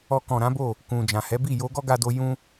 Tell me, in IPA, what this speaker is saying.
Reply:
ɔ˧kɔ̃˨ɾã˨˦bo˦˨ | kũ˨ d͡ʒã˨hɛ˨˦bi˦˨ jo˧ ɡɔ˦ɡa˧do˧ jũ˦

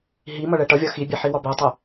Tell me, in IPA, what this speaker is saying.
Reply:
ɦi mʌɭɛʈʌvʲɒ xibʲɛ ħiwɒbɛtˤɛ

